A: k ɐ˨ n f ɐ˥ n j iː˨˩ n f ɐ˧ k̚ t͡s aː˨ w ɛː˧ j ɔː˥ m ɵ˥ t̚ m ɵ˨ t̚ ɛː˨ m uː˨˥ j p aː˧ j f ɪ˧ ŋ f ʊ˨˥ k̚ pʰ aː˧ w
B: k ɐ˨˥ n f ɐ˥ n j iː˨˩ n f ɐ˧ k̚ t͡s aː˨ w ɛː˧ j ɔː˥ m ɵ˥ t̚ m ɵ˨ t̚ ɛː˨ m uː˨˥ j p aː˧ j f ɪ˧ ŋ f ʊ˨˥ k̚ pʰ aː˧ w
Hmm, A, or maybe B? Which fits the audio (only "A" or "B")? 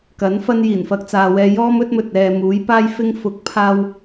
B